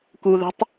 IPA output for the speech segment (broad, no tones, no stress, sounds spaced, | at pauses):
k u ð ə̤ tˤ